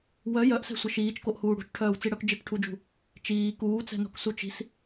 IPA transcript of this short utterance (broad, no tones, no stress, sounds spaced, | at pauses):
w œ j œ ʔ s ɛ̤ sʷ ə ʃ iː t͡ʃ k o ʔ h uː ɽ ṳ t͡ʃ ʈʰ œː w t͡s i ɽ œ k d͡ʒ ɪ k ʈʰ u d͡ʒ ṳ | t͡ʃ iː k uː t͡s ɛ̤ n o̤ k s u t͡ʃ i̤ s